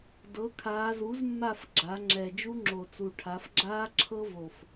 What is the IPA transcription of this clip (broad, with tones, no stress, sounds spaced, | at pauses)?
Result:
d ɤ˩˥ kʰ aː˩˧ z u˩˥ z mː a˦˨ f ɡ͡ǁ a˩˧ ŋ͡ǁ ɛ˨˩ d͡ʒ u˦˥ ŋ͡ǁ o˨˩ t͡s u˨˩ ʈʰ a˩˧ f ɡ͡ǁ aː˦˥ ǁʰ ɤ˦˥ v o˨˩ f